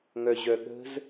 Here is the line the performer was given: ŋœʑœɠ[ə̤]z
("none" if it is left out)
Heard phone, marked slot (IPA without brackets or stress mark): ə̤